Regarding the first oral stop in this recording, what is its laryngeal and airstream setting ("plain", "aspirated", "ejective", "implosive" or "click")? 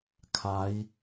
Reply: aspirated